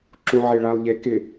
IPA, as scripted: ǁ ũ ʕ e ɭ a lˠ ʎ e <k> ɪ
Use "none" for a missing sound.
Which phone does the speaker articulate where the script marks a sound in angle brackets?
k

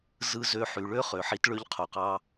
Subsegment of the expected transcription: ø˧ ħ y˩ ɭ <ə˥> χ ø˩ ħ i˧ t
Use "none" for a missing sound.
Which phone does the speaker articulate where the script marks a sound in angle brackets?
ø˥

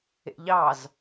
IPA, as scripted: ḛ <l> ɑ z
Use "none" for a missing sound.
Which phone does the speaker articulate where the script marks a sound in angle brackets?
ʎ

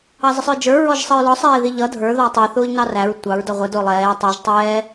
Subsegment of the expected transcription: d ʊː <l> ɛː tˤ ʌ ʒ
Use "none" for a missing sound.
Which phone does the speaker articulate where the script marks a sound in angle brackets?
lˠ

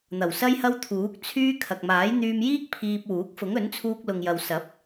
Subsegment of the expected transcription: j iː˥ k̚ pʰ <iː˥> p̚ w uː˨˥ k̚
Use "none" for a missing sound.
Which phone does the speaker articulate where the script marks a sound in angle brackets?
iː˧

